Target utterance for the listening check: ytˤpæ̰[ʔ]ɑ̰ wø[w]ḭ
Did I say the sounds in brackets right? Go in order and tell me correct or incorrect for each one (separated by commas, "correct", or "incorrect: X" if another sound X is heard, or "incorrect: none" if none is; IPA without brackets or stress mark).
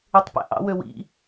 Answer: correct, correct